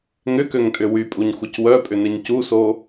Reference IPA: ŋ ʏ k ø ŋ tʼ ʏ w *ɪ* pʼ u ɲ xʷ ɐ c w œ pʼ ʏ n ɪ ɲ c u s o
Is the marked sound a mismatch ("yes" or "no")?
yes